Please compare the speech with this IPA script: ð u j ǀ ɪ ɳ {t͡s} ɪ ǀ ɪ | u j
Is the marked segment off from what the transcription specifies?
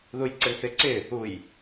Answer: yes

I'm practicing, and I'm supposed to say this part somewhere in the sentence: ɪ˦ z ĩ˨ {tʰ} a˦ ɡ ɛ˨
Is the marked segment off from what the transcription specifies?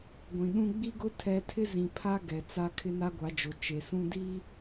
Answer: yes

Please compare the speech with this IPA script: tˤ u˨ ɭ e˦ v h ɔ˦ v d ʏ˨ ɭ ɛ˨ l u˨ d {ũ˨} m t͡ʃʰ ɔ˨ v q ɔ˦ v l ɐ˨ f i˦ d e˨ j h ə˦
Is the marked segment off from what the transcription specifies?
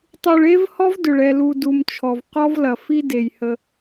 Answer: yes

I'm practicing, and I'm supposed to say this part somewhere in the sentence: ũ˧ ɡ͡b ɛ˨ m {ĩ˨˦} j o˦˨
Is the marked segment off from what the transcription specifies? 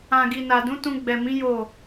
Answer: no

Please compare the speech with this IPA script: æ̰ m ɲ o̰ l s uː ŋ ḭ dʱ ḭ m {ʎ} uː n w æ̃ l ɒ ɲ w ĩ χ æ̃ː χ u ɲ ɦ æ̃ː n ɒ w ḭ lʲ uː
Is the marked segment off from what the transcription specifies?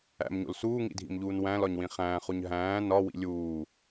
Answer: no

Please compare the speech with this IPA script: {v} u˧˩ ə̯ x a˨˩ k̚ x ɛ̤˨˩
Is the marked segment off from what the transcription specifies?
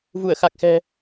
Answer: no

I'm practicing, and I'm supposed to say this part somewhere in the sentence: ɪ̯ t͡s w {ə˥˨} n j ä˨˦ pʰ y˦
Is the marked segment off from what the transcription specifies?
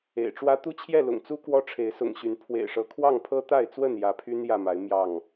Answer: no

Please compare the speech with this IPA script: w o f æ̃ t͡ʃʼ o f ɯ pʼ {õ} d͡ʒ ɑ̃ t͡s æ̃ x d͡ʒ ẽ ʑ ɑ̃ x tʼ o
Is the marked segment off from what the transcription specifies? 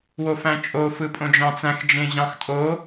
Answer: no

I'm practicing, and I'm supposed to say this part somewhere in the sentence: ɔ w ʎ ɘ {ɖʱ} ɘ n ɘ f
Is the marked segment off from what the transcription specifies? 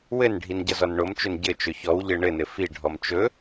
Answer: yes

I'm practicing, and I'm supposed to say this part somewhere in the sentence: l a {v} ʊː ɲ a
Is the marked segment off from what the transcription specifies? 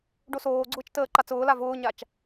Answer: no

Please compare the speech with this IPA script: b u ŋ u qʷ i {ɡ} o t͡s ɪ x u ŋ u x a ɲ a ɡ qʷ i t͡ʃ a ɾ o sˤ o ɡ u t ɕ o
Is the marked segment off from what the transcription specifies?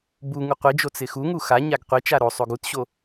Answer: yes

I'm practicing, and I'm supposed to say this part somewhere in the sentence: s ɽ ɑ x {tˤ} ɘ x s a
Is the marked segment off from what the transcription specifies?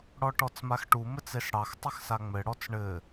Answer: no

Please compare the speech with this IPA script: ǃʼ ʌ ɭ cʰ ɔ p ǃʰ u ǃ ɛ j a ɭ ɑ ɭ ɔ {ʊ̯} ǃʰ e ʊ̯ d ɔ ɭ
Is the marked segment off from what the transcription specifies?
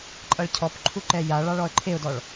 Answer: yes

